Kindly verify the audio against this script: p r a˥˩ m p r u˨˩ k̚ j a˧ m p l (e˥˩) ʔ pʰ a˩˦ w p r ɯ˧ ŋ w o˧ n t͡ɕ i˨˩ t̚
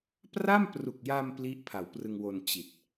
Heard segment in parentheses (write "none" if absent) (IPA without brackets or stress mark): i˥˩